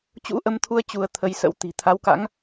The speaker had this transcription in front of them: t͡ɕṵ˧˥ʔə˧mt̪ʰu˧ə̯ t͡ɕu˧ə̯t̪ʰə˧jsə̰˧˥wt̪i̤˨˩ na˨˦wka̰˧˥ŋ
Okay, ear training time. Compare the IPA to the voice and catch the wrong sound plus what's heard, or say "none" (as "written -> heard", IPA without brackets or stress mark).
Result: n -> t̪ʰ